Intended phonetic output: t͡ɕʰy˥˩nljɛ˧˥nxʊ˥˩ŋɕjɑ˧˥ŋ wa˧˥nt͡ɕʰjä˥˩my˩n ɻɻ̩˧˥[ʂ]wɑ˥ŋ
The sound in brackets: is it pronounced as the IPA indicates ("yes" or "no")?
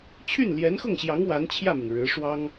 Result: yes